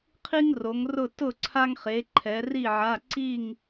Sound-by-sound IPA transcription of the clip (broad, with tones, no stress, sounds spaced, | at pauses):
qʰ i˥ ŋ r o˨˦ ŋ r ʊ˥˨ t ʊ˥˨ ǀʰ a˥ ŋ χ e˨˦ ǃʰ ɛ˨˦ r i˥˨ ʕ a˧˥˧ ǀ i˥˨ ŋ